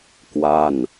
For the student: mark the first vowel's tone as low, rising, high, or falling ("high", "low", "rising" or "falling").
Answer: falling